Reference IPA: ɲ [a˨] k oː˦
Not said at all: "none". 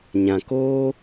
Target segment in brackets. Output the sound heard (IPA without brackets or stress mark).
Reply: ã˨